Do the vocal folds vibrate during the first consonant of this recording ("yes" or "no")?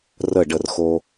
yes